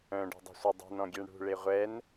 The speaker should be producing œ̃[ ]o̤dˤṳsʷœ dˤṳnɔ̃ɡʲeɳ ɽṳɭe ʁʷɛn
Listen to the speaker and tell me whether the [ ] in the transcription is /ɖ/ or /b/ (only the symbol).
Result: ɖ